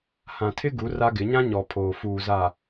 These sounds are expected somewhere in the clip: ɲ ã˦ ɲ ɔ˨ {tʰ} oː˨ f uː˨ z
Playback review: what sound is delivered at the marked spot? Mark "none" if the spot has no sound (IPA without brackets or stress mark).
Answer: pʰ